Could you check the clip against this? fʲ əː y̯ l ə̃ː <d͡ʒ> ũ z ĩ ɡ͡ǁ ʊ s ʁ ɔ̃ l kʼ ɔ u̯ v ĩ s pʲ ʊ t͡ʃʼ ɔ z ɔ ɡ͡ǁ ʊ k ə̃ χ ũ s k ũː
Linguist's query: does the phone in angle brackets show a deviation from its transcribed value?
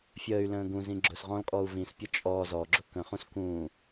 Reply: yes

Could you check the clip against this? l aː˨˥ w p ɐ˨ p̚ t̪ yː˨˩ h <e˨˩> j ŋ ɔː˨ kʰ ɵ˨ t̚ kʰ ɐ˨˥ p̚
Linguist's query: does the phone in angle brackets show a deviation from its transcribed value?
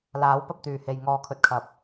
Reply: yes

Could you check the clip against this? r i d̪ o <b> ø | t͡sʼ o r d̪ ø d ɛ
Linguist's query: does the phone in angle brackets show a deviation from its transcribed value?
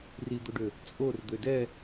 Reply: yes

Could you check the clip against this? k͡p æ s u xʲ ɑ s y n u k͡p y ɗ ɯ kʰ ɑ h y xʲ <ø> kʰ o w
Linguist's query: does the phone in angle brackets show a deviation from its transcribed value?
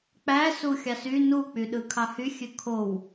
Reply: no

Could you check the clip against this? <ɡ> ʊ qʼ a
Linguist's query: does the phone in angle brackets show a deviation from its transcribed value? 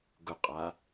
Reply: no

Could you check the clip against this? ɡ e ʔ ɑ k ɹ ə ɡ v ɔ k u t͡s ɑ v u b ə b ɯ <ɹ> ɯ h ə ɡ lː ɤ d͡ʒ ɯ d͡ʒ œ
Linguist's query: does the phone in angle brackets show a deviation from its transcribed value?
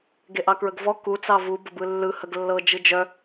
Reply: yes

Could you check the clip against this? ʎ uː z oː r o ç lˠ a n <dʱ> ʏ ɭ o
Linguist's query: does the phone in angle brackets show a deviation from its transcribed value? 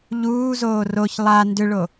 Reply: yes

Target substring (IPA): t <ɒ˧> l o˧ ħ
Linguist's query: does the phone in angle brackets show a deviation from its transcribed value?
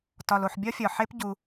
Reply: no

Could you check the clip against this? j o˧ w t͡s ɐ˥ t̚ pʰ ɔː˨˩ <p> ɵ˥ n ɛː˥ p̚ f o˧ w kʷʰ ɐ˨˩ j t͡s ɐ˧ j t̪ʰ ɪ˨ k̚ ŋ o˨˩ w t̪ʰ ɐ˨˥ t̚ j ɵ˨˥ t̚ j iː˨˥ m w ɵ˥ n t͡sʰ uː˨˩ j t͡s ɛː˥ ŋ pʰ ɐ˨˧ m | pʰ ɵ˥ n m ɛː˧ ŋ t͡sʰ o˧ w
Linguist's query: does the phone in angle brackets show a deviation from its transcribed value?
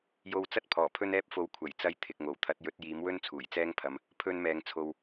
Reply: yes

